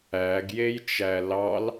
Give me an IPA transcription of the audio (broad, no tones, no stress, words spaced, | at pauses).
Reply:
æɡjej t͡ʃælɑl